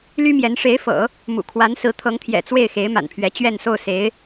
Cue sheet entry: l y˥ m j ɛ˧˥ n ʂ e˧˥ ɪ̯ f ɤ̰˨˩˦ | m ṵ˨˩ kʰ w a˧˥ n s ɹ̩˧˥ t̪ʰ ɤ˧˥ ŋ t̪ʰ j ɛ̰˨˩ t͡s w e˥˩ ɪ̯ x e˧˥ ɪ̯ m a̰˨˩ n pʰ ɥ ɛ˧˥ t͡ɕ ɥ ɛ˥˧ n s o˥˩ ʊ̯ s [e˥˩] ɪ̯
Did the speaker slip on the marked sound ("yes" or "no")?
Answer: yes